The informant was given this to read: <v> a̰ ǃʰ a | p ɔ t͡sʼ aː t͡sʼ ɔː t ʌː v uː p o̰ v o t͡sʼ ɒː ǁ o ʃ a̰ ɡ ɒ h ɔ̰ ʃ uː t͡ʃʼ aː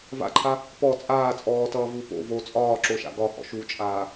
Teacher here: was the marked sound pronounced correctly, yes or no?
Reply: yes